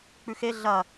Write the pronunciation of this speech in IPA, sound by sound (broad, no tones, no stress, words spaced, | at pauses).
k͡pʉxe ɮɐ